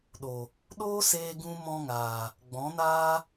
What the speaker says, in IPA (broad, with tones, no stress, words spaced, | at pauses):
ɗo˨ | ɗoː˦seː˧ɡũ˧ mɔ̃˦ŋaː˨ | ɡ͡bɔ̃˨˦naː˦